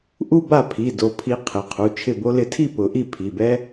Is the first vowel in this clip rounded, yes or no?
yes